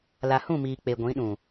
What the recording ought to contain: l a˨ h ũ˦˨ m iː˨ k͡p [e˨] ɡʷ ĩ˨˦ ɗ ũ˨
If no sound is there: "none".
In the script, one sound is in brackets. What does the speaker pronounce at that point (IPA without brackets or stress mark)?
e˨